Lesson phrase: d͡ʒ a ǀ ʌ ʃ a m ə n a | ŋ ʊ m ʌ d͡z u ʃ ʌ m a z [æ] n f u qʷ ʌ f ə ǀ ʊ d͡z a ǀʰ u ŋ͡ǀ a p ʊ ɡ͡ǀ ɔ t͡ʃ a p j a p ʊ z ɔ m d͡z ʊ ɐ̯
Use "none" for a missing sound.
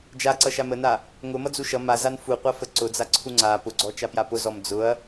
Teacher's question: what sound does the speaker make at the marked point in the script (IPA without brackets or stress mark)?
a